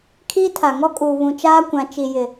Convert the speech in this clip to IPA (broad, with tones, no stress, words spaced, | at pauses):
kʰiː˦tʰa˨ŋɔ˦ kʼuː˨ βũ˨ t͡ʃaː˦kʷã˨ t͡ʃi˨ jɪ˨